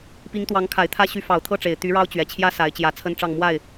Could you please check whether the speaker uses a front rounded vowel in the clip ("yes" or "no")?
yes